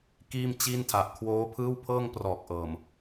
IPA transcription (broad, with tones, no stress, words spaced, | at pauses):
kiː˥˩mt͡ɕiː˥˩ntʰa˨˩ʔ kʰwoː˦˥pʰɯː˥˩wpʰɤː˥˩ŋprɔː˨˩k̚ ʔɤː˨˩m